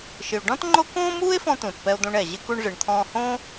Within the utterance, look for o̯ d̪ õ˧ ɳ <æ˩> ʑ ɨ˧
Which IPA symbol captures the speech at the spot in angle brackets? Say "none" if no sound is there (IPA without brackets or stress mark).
ɛ˩